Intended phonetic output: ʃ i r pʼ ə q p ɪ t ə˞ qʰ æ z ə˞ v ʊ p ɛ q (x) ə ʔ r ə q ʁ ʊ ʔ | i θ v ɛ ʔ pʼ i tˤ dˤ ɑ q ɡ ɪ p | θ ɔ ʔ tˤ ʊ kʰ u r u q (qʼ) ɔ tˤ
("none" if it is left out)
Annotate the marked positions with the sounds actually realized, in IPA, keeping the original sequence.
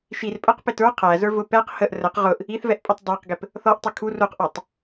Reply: h, ʔ

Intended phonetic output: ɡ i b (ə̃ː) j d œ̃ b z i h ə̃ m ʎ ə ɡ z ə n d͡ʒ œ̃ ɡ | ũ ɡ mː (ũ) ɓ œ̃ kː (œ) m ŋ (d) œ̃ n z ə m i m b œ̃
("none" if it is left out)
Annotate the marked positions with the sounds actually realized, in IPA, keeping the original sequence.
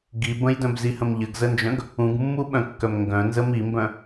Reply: ə̃, u, œ, ɡ

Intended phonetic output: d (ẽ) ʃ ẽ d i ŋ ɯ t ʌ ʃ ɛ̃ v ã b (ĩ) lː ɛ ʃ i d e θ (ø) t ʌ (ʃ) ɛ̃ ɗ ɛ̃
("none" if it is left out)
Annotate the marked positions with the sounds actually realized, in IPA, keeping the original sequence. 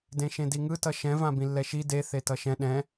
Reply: ẽ, ĩ, e, ʃ

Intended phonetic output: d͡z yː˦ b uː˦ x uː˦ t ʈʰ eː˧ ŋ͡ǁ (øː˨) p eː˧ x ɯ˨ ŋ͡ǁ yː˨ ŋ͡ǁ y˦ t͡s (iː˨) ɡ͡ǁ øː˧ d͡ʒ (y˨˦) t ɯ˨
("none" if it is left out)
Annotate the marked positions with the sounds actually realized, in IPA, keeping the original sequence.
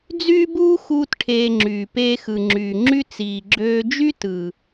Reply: yː˨, iː˨, y˦

